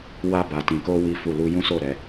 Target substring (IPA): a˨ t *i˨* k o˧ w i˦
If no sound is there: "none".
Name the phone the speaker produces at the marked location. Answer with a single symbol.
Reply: ĩ˨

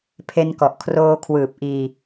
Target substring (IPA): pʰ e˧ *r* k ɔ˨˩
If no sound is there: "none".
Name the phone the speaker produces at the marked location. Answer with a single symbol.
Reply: n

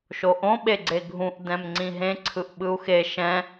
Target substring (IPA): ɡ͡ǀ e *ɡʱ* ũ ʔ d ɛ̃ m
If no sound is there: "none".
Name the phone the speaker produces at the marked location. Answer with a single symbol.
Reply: ɡʱ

